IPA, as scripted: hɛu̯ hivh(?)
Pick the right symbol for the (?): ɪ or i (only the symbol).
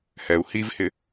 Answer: ɪ